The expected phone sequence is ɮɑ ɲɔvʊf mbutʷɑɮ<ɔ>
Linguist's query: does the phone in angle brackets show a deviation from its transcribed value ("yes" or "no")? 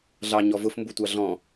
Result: yes